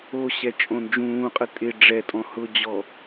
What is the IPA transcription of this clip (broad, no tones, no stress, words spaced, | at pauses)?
oɕɛ t͡ʃʼõnd͡ʒũːqʼə tʼɪ ɖ͡ʐɛtʼɔ̃ hʊd͡ʑɔ